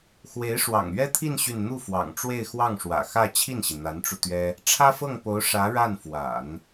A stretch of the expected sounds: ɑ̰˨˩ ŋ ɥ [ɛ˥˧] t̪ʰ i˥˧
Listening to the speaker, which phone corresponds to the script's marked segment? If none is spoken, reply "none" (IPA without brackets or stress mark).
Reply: ɛ˥